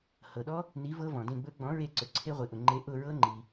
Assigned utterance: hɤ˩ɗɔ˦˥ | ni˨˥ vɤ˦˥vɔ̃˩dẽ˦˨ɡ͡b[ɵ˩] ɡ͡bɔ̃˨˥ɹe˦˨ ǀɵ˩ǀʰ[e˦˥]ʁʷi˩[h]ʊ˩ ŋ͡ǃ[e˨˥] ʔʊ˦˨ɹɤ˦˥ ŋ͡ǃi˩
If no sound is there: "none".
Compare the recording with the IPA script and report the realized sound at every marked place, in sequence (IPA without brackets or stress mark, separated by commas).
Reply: ɵ˦˥, e˦˥, ʔ, e˨˥